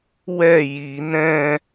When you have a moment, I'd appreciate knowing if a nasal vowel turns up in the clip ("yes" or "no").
yes